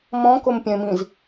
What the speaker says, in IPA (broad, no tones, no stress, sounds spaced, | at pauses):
m ɔ̃ k o m pʲ ɛ̃ m ĩ z